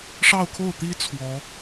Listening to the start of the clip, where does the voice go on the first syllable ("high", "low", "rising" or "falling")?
falling